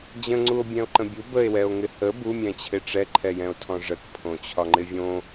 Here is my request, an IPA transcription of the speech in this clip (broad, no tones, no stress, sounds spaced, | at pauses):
d͡ʑ ə̃ ŋ͡ǀ u o̯ bʲ ɛ̃ o̯ ǃ ə̃ bʲ u b ə e̯ w ɛ o̯ ŋ ɪ h ə b u mʲ ɛ̃ t͡ɕʰ ɪ ʈ͡ʂ ɛ ǃʰ ɛ j ɛ̃ o̯ tʰ ɔ̃ ʐ ə k pʰ õ t͡ɕʰ ɒ ŋ͡ǃ ɪ vʲ õ